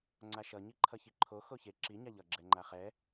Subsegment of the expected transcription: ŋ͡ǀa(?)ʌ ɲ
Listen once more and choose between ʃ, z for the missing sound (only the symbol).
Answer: ʃ